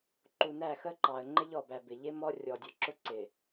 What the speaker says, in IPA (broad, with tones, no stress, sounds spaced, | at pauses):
ǃ u˨ n æ˦˨ x ə˦ ǃ ɑ˨ ə̯ ŋ͡ǃ ɪ˦ ʎ ɔ˨ b æ˨ b ɪ˨ ʎ ɪ˦ m ɔ˦ rʲ ɔ˨ dʲ ʊ˨˦ ǁ ʊ˦ ǀ ɪ˨